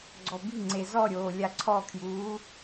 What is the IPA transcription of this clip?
ɡ͡ǀ ɔ b i̤ ŋ͡ǀ e z ɔ ɾʲ oː lʲ a ǀʰ ɔ kʰ j uː

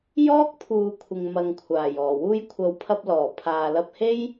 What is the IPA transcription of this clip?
j ɔː˥ k̚ pʰ uː˨˧ kʷʰ ɪ˨ ŋ m ɐ˨ ŋ kʷʰ aː˨˩ j ɔː˨˩ w uː˧ j kʷʰ ɐ˨˥ w pʰ ɐ˧ p̚ l ɔː˨˩ pʰ aː˨ l ɐ˧ p̚ h e˥ j

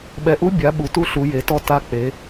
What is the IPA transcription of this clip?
ɓ ɛ˩˧ ʔ u˧˥ bʲ a˩˧ ɓ u˩˧ t u˧˥ ɬ u˩˧ j e˩˧ t ɔ˧ t a˧ k͡p e˩˧

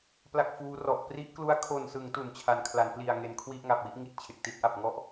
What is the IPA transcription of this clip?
p l a˥˩ k̚ f uː˦˥ r ɔ˨˩ ʔ p r i˦˥ ʔ k l u˦˥ a̯ kʰ o˨˩ n s ɯ˩˦ ŋ t u˨˩ n t͡ɕʰ a˨˩ n kʰ l a˩˦ n p l i˨˩ a̯ ŋ e˨˩ n kʰ w i˥˩ ʔ ŋ a˨˩ p̚ w i˦˥ ʔ ŋ i˨˩ t̚ t͡ɕʰ e˨˩ k̚ t i˦˥ t̚ ʔ a˨˩ p̚ ŋ ɔ˥˩ ʔ

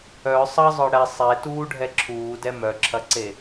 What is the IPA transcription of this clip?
œ sˤ ɐ zˤ œ ɽ ɛ sˤ e t uː ɖʱ ɛ ǁʰ uː d ɛ m œ ǁʰ ɐ ǀ e

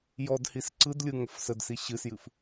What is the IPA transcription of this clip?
j ɔ d h i s ǀ ɯ d lʲ ɯ ŋ ə f s ə d s i ɕ ɨ s j ɨ f

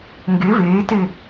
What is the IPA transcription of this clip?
ŋ ɡ e v eː t e

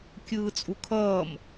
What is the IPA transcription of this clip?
kʲ ɯː t͡sʼ u kʰ ʌː m

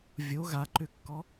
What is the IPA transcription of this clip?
vʲ o ɣ a ǃ ʏ kː ɔ

